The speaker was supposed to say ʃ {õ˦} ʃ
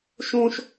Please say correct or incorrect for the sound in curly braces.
correct